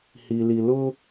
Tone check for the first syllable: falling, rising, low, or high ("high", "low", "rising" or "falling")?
low